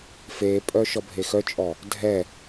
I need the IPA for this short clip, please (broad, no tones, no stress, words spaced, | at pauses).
fepʼœ ʃɔbʱexœt͡ʃʼɔ | dʱɛ